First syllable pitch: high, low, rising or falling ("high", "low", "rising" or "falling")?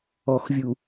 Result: low